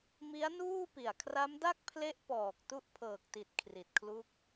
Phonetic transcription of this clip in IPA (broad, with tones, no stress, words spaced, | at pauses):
mi˦˥a̯nuː˥˩pi˨˩a̯ kʰra˦˥mda˥˩k̚pʰle˦˥ʔ pɔː˨˩k̚ tu˦˥ʔpʰɤː˨˩k̚ti˨˩t̚ kʰri˨˩t̚kʰlu˦˥k̚